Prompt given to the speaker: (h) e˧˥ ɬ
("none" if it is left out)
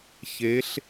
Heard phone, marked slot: ç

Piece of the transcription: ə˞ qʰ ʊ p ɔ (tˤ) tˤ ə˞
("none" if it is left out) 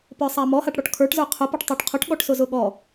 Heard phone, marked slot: ʈ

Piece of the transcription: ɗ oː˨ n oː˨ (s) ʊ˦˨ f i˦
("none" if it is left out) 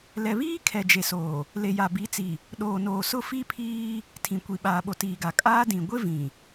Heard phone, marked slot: s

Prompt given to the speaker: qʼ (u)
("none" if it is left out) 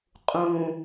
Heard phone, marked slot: ũ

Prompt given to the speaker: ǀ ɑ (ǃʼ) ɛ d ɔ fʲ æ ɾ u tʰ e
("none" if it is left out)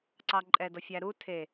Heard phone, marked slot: ǃʼ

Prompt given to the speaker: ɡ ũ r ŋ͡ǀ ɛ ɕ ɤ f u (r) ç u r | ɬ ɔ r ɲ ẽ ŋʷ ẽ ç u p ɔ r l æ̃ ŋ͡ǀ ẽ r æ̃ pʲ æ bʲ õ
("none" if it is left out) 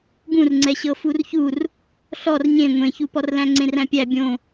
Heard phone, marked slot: r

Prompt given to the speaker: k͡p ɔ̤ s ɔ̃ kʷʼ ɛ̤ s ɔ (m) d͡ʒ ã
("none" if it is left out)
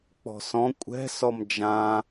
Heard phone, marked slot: m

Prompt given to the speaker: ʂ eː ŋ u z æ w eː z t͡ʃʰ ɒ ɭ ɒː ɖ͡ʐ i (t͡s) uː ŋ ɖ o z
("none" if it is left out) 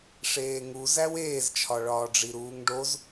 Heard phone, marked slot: ɾ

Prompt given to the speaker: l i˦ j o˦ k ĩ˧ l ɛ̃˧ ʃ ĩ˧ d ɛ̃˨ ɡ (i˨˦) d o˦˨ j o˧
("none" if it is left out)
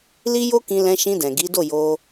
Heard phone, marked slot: i˨˦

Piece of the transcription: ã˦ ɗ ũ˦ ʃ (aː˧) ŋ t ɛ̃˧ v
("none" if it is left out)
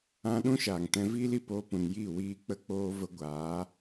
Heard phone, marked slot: aː˨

